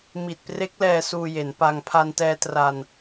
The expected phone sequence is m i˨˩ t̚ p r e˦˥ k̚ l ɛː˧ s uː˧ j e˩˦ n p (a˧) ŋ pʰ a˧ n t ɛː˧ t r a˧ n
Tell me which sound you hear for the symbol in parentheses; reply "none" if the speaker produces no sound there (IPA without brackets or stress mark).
a˧